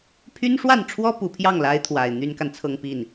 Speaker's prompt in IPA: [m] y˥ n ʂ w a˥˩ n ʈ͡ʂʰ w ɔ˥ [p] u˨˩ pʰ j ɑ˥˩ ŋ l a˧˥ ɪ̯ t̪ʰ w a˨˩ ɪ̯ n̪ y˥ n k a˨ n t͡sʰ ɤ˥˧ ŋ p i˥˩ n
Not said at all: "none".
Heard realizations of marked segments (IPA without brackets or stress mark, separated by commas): pʰ, p